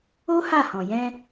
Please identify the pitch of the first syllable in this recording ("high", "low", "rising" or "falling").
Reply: high